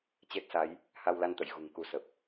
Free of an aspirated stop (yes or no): yes